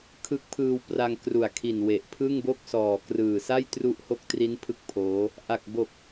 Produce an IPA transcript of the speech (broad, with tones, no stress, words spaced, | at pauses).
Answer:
kʰɯ˦˥k̚pʰɯː˧wpra˧ŋ kru˨˩a̯kʰi˨˩nwe˨˩ʔ pʰɯ˥˩ŋbo˥˩k̚sɔː˨˩krɯː˨˩ sa˥˩jtru˦˥ʔho˦˥k̚tri˦˥n pʰɯ˥˩k̚pʰoː˦˥ | ʔa˨˩k̚bo˨˩k̚